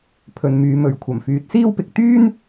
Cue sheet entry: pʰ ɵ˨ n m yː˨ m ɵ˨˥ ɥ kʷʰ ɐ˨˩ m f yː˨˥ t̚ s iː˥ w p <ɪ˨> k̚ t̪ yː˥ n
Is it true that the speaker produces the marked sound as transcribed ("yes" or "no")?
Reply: yes